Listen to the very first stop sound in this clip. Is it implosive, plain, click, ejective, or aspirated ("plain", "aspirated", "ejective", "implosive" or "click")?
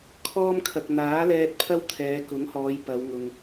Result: aspirated